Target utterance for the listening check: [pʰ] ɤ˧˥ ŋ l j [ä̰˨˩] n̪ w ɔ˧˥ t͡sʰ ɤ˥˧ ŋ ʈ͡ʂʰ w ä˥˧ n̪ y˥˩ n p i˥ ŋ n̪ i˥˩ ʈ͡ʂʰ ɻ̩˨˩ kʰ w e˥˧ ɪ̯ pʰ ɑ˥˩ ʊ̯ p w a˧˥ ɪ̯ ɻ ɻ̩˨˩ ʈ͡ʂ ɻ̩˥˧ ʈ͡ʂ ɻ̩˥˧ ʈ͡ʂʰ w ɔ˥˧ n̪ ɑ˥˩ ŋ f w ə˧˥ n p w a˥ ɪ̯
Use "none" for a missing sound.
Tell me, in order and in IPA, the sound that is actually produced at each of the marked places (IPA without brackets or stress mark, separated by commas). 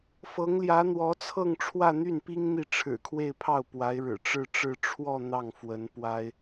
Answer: f, ä˧˥